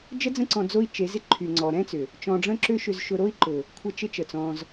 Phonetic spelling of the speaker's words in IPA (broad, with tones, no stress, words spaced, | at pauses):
d͡ʒə˦d͡zə̃˦ ǀɔ̃˧d͡zo˦i̯t͡ʃe˨˦zɪ˦ ǃʰy˨ŋ͡ǀɔ˨ɾɛ̃˦t͡sʏ˨ | t͡ʃɔ̃˧ɖ͡ʐə̃˦ǁʏ˦ʃʏ˧z ʃʊ˧ɾo˦i̯ ǃʊ˨ | kʷʰə˦t͡ʃɪ˦t͡ʃə˨t͡sɔ̃˧z